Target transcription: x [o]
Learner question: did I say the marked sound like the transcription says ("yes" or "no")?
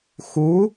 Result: no